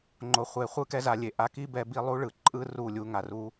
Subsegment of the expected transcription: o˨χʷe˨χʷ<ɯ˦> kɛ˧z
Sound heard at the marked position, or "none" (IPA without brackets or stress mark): ɯ˦